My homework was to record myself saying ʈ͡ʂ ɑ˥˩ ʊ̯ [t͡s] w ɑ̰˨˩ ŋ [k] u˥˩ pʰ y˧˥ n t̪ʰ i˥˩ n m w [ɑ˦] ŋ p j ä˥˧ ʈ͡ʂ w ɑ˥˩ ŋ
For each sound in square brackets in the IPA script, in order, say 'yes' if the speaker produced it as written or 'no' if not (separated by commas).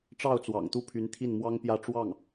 yes, no, no